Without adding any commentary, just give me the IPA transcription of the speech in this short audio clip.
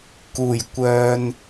k uː˨˩ j kʷ œː˨ n

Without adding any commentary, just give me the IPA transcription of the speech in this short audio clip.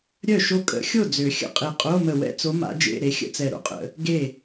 ɾʲ œ˥˩ ʃ o˥˩ kʼ ə̰˧˥ xʲ o˥˩ d͡z ø˨˩˦ xʲ ə̰˧˩ qʼ e˧˩ qʼ o˧˥˧ m ə˧˩ w ɛ̰˥˧ t͡s o˧˥ m a̰˧˥ d͡ʒ ḛ˧˥˧ ɾ e˧˥ xʲ ə̰˧˥˧ t͡s ɛ˧˩ ɾ o̰˧˩ qʼ ə̰˨˩˦ | ɡ e˥˩

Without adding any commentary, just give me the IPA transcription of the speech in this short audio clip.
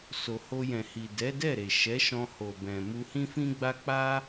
s o˨ h o˧ j ɛ̃˨ h i˨ d ɛ˨˦ d ɛ˦˨ ɾ e˨ ʃ ɛ˨˦ ʃ ɔ̃˧ h o˨ b ɛ̃˨ m u˧ h ĩ˦ f ĩ˦ ɡ͡b a˦ k͡p a˦

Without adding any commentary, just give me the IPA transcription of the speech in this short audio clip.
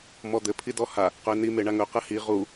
m ɔ d̪ ɘ pʰ i d ɔ h a | q ɵ ɪ̯ n i m e ɳ a ŋ ɵ q ɘ h i ʁ u

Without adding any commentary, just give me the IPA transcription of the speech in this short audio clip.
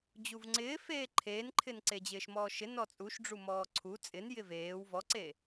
d͡ʑ u v ŋ͡ǀ ɪː f eː ǃʰ eː n ǃʰ ɪ n ǀ e d͡ʑ ɪː ʃ m ɔː ʃ ɪ n ɔ t͡sʼ u ʃ ɖ͡ʐ u m ɔː ǀʰ u t͡sʼ ɪ n j ɪ v eː w v ɔ ǀ e

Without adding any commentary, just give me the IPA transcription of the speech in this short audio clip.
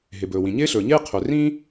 ɦ ɪ˩ b ɵː˩ w ĩ˩ ɲ ɪː˥ ɬ ɵː˩ ɲ ɪː˥ qʰ ɵ˩ r ĩ˥

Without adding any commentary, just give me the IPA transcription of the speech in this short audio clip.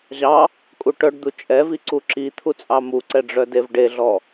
ʑ ɑ | kʼ u ʈ œ ɖ d̪ u t͡ʃʼ ɛ v i ǀ u ǁ i t̪ʰ u t͡sʼ ɑ m u ǀ ɛ ɖ͡ʐ œ d e v ɖ e ɮ ɔ

